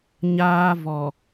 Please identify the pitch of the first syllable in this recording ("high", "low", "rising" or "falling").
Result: high